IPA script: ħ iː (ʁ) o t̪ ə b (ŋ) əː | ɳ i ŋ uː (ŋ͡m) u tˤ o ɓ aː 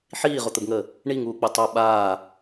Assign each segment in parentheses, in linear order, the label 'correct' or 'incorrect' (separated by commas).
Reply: correct, correct, incorrect